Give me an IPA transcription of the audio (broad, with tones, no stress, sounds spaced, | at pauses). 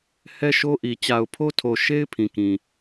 h ɛ˦ ʃ o˦ ʔ i˨ t͡ɕ a˨ ʊ̯ pʰ o˦ tʰ o˨ ʃ e˦ ɪ̯ pʰ ĩ˨ k ĩ˨